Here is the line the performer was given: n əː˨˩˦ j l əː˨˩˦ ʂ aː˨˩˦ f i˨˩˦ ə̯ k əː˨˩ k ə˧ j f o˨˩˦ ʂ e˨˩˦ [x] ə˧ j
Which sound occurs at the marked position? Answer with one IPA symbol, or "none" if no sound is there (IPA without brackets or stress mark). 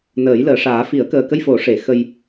x